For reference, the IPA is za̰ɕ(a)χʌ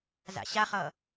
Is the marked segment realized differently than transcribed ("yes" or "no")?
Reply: no